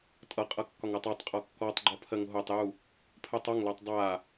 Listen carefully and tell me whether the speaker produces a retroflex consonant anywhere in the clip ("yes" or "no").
no